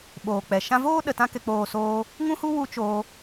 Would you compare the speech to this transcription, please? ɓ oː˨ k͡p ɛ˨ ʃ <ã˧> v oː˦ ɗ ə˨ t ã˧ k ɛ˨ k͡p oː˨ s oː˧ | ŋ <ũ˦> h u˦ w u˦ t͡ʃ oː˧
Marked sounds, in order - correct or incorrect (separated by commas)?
correct, correct